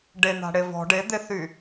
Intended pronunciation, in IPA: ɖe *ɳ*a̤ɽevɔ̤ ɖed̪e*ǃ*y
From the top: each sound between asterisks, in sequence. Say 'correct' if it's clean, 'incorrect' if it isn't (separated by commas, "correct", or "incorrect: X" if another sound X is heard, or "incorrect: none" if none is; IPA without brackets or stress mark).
incorrect: n̪, incorrect: θ